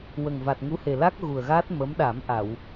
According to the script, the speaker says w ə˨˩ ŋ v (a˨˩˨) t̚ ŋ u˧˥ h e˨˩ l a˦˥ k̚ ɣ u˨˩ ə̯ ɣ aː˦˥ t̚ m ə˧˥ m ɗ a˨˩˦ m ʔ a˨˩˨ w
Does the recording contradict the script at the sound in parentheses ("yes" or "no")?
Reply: yes